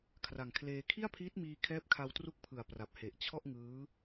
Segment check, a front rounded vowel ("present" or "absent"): absent